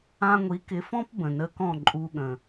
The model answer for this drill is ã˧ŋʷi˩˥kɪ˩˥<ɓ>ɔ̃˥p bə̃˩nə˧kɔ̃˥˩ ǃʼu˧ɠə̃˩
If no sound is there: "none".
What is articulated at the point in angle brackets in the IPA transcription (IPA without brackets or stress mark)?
f